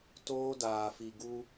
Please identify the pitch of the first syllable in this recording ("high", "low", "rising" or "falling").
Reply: high